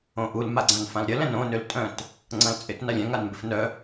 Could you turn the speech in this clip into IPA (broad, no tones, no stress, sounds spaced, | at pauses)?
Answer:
õ ʔ u l m a ɡ͡ǀ ã n f ã l ɾʲ ɐ l ɛ̃ n õ n ø l tʼ œ̃ t | ŋ͡ǀ ɐ̃ l t͡sʼ ɪ t n a lʲ ɛ̃ ŋ a n m b ɪ f n œ